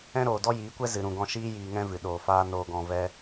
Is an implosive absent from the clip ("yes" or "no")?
no